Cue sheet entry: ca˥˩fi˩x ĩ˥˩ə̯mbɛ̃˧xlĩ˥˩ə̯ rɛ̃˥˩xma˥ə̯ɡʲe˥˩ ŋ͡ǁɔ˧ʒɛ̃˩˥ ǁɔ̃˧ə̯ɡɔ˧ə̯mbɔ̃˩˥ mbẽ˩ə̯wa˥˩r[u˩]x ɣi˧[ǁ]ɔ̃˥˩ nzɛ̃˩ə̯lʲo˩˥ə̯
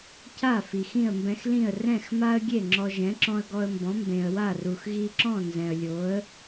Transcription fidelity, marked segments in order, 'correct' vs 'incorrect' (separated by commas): correct, correct